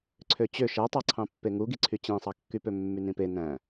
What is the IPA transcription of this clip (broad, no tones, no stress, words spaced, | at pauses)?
ǀʰøt͡ɕø ʃætˤɑǀʰɑ̃pːe ŋuɡiǀʰy t͡ɕẽsˤɑkːypø mːynĩpe næ̃